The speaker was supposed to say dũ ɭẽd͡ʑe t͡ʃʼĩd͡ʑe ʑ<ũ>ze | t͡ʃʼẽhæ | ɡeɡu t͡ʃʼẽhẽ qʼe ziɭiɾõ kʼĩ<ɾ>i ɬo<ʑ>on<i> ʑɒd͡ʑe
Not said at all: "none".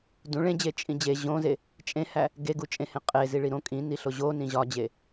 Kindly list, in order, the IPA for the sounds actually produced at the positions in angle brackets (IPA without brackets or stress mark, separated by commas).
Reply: õ, n, ʑ, ĩ